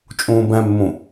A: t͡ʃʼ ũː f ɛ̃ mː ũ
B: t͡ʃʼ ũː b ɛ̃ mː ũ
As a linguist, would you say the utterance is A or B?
B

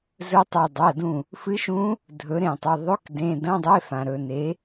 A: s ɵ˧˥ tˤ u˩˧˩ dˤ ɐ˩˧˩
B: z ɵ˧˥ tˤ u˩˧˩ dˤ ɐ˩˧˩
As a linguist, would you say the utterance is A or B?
B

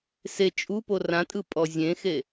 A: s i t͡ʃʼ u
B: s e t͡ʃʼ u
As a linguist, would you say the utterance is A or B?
B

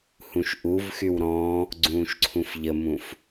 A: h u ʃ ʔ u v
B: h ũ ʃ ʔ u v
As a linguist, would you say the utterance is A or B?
B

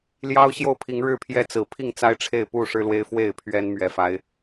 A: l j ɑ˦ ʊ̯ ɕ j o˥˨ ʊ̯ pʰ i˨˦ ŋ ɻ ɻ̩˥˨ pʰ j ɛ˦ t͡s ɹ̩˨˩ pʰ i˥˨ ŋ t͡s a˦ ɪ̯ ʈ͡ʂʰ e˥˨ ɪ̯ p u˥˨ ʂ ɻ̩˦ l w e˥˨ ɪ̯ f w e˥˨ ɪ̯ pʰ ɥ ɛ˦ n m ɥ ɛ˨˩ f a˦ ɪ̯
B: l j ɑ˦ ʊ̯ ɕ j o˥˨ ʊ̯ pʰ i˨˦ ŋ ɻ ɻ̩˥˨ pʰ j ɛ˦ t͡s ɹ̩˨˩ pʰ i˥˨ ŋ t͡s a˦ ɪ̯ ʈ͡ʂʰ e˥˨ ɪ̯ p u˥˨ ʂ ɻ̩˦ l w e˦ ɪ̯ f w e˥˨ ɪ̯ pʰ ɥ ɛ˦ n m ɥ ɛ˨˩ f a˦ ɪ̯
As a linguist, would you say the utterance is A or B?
B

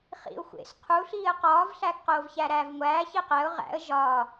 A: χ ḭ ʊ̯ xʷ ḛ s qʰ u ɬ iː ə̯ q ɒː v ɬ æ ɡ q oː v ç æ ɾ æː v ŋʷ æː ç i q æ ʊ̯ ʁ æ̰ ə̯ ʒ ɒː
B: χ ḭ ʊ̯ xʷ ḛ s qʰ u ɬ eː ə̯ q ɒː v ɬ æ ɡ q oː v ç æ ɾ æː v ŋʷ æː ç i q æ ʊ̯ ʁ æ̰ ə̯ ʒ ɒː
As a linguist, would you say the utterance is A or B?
A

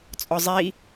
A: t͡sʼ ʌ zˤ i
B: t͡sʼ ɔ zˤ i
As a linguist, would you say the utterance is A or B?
B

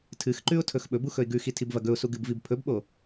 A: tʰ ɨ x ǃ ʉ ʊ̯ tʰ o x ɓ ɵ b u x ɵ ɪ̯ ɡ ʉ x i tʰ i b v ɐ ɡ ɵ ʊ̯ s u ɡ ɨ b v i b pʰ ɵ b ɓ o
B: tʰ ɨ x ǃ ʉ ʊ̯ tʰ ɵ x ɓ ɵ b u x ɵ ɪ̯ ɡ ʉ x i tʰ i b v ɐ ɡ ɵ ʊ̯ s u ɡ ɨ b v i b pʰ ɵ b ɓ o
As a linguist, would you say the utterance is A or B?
B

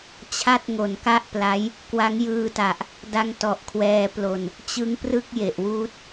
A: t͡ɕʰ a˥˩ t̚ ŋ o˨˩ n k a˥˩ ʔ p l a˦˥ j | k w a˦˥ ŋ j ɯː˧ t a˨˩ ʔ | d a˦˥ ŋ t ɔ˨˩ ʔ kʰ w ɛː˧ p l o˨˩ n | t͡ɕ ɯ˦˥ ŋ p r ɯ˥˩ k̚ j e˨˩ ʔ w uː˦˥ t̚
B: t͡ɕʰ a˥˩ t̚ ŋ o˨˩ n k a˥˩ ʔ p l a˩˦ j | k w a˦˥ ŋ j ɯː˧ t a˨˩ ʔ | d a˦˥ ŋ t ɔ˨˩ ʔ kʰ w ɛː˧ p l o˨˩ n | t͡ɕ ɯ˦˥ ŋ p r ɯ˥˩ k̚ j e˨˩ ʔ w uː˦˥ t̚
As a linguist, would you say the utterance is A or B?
A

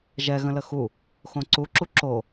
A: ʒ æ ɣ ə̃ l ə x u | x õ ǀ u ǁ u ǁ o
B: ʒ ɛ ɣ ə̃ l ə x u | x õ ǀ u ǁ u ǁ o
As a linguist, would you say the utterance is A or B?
B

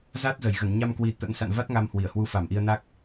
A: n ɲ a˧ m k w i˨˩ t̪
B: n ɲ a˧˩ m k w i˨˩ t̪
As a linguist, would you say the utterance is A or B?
A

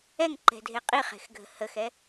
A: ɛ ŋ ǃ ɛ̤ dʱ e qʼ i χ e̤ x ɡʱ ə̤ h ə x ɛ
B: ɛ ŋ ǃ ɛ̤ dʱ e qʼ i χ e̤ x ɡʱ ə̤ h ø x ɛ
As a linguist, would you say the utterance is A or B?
A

